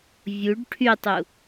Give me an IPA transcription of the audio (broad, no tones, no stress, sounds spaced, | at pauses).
vʲ u ɖ ʈʰ y tˤ u